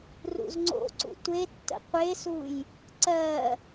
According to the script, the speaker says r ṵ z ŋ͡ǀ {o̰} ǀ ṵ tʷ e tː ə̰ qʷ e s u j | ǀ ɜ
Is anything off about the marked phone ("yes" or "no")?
no